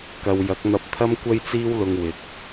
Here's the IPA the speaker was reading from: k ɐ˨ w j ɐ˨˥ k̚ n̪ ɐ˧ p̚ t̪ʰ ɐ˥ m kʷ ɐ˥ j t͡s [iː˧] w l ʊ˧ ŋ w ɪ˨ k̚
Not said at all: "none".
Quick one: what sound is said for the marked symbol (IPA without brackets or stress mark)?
iː˥